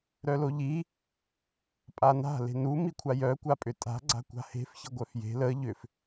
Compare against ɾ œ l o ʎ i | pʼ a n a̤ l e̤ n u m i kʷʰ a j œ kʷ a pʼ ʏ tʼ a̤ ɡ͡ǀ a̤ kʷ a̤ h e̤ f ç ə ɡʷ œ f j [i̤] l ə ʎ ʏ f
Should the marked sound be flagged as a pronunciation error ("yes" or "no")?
yes